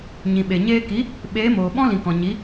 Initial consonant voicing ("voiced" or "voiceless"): voiced